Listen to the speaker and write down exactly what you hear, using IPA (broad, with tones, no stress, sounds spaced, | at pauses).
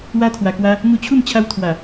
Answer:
w a˧ t̪ʰ w a˨˩ k w a˧ | ŋ u˧ t͡ɕʰ u˥˧ m t͡ɕʰ a˧ w t̪ʰ w a˨˩